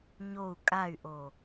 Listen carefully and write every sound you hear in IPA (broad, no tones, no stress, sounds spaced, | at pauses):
ɲ o u̯ kʼ a y̯ ʔ o